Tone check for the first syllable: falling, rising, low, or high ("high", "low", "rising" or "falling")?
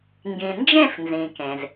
low